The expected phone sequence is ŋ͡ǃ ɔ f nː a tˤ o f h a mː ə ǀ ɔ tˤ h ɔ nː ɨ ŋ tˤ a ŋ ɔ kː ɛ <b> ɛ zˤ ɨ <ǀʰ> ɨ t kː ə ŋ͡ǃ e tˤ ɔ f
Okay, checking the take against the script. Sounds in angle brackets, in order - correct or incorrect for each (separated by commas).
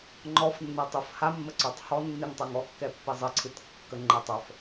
incorrect, correct